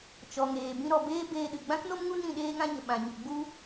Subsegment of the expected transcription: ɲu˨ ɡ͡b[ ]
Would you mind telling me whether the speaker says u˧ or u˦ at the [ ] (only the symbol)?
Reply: u˦